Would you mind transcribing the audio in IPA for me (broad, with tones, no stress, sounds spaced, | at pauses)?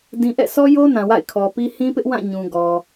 d ĩ˨ ʔ ɛ̰˦˨ sʰ ɔ˦ j o˦ n ã˨ w a̰˦˨ ɪ̯ kʰ ɔ˨ p i˦ h ĩ˦ p ɪ˦ ʔ w ã˦˨ ɲ ũ˨ ɡ ɔ˨